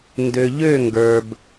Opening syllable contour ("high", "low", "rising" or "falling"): low